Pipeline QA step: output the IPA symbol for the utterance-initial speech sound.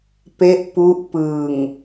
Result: p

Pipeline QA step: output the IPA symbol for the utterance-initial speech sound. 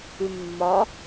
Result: ʉ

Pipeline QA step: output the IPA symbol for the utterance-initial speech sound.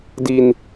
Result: d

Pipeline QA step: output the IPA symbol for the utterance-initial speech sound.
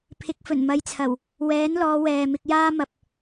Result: pʰ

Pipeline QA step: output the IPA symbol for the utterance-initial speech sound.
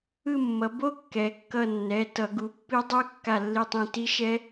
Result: ɯ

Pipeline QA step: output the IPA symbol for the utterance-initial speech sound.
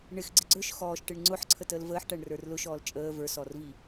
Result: ɳ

